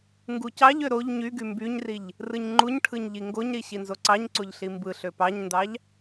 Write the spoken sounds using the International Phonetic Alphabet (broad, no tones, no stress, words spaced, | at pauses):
ŋɡucɑʎø ɾoʎ ɲyɡy mbyɲriʎ | rɯɲŋ͡ǃuɲʈʰɯɲ ʎiŋɡoɲɾi ɕinzoǀɑɲǀoʎ ɬimbɯɬø pɑɲndɑʎ